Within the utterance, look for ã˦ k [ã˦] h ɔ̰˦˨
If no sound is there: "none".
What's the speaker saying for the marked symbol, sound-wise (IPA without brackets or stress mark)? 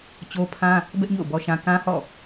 ã˦